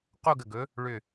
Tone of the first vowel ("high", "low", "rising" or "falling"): falling